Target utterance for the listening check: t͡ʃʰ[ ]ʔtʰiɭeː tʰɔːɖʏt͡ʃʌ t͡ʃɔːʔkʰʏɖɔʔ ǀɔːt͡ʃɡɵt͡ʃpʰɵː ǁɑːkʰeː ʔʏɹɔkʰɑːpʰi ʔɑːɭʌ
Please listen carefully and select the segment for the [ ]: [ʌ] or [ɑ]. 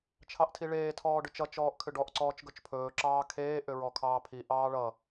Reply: ɑ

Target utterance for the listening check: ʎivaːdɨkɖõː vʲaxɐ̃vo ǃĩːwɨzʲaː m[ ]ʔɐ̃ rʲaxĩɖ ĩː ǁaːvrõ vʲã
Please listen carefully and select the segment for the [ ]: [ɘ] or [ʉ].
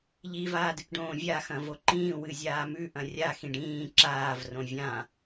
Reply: ʉ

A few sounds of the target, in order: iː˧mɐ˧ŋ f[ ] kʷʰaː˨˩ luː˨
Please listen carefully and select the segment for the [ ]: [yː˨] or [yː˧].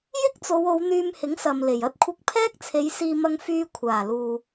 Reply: yː˧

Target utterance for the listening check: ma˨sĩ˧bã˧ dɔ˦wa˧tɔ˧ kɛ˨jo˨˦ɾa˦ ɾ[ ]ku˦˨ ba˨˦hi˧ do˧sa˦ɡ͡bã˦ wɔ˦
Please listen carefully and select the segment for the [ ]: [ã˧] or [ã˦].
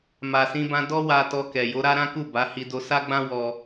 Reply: ã˦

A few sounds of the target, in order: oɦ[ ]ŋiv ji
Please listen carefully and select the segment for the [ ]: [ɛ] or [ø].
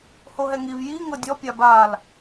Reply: ɛ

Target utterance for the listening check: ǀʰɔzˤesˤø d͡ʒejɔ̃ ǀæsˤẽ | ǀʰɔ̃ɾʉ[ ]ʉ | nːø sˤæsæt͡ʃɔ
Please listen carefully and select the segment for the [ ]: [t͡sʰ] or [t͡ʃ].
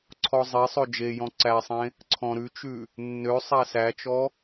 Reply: t͡ʃ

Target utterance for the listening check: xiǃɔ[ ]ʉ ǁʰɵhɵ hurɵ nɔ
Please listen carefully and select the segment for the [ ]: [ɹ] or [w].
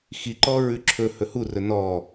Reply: ɹ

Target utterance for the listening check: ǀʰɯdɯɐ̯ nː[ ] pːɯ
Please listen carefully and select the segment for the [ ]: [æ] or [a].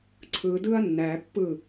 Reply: æ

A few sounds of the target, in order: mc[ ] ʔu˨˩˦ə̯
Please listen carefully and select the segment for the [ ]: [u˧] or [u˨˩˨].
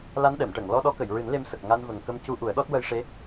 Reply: u˧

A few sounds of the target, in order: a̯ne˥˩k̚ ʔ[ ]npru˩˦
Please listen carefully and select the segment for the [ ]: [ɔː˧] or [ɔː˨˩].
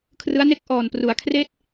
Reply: ɔː˨˩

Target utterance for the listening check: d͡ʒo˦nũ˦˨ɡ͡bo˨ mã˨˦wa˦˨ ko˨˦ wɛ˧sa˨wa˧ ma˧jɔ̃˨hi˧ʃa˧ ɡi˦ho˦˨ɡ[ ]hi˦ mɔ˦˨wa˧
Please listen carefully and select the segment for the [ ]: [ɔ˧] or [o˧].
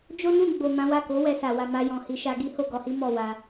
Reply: ɔ˧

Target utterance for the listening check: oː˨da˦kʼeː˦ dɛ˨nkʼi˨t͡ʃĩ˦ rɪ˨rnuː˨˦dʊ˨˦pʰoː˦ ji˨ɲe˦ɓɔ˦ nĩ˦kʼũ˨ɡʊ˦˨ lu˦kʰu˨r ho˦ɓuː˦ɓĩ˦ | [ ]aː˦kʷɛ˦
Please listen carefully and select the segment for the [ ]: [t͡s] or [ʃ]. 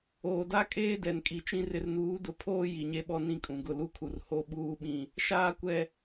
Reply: ʃ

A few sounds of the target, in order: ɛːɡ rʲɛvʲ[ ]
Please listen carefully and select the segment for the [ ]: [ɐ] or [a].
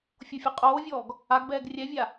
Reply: a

